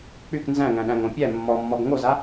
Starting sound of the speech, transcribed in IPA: k͡p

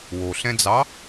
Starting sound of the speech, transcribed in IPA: w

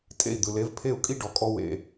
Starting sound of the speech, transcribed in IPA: tʼ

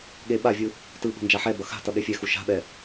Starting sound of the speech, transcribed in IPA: ɠ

